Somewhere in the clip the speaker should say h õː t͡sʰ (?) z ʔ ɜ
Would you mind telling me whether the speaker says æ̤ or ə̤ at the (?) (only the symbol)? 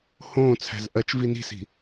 æ̤